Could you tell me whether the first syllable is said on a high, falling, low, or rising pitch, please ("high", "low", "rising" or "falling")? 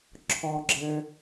low